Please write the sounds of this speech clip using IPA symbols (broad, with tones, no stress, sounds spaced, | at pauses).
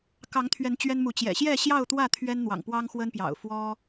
k ɑ˨˦ ŋ t̪ʰ ɥ ɛ˨˦ n t͡ɕ ɥ ɛ˦ n m u˨ t͡ɕ j ɛ̰˨˩ ɕ j ɛ˥˨ ɕ j ɑ˥˨ ʊ̯ t̪ w ä˥˨ t̪ʰ ɥ ɛ˦ n n̪ w ɑ̰˨˩ ŋ p w ɑ˦ ŋ x w ə˦ n p j ɑ̰˨˩ ʊ̯ f w ɔ˦